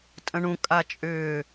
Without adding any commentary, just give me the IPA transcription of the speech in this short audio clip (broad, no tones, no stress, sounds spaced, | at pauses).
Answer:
tʼ ə̃ ɳ ũ kʼ a t͡ʃʼ ʏː